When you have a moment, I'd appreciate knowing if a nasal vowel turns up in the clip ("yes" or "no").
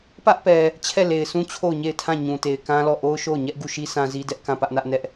yes